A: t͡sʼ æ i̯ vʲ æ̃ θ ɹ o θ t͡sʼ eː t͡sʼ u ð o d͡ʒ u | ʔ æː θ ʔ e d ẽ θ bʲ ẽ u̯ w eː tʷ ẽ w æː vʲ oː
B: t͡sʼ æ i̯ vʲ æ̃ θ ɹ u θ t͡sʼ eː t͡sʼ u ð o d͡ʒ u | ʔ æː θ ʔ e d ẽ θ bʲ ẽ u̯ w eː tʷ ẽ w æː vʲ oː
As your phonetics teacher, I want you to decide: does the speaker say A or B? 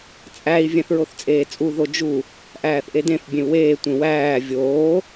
A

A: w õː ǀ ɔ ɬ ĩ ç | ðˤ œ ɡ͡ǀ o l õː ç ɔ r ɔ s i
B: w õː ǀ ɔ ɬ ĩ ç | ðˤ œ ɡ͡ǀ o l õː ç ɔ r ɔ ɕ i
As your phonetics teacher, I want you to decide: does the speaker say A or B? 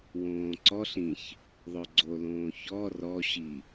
B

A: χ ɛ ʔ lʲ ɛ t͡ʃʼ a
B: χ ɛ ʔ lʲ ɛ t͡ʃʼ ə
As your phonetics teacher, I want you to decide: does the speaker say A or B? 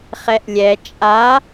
A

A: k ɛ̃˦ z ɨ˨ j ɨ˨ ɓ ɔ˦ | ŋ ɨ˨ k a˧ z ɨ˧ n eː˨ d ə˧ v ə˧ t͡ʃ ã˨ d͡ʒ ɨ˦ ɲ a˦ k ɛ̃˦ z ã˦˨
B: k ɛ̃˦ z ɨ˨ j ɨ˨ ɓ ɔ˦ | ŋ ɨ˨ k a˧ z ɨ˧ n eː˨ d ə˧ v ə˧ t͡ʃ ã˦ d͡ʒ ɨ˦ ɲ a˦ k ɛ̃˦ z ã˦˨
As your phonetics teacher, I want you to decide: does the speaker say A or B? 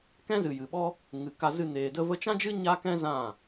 B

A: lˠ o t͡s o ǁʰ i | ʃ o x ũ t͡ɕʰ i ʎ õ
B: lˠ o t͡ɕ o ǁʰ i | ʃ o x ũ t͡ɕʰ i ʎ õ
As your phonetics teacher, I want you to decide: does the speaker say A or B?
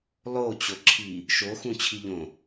B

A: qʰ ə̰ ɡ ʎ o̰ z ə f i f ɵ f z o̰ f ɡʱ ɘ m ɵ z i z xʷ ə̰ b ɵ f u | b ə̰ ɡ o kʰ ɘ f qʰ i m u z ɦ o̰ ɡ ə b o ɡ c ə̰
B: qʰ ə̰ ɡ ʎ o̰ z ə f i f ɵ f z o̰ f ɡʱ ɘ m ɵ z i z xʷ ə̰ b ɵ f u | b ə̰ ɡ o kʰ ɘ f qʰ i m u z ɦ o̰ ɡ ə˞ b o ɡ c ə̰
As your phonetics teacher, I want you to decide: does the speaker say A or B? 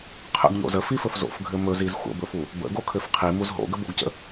A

